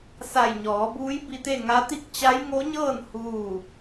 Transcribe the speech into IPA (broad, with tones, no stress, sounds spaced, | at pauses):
s a˧˩ j ɲ ɔː˩˧ b uː˧˥ j b i˧ t̪ e˥˨ ŋ a˧˥ t̪ i˥˨ k̚ t͡ɕ a˧˥ j ŋ o˧˥ ɲ ɤː˥˨ n h uː˥˨